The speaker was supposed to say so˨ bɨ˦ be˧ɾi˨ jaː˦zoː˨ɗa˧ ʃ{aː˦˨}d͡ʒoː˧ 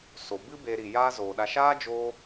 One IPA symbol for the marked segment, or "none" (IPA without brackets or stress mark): aː˦